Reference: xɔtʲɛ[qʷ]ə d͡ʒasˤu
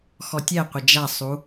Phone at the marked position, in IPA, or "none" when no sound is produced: qʷ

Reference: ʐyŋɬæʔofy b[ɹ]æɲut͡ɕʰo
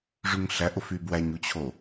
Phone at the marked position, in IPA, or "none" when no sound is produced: w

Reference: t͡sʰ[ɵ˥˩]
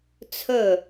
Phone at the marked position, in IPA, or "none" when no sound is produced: ɵ˥˩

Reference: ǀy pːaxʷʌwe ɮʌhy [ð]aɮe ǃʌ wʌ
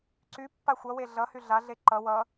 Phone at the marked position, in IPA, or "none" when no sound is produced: ɮ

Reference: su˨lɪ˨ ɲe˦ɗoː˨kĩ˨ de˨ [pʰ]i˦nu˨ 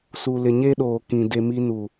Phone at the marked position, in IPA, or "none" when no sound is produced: m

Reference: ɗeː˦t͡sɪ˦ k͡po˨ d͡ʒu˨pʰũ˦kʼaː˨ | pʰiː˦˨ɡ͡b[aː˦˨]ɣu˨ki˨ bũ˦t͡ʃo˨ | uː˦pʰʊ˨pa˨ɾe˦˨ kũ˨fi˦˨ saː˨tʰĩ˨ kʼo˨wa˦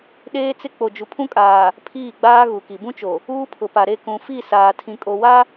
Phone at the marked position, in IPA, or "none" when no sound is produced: aː˦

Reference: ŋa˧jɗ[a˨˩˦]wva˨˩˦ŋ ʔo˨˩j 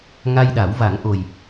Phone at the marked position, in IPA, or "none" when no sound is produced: a˨˩˦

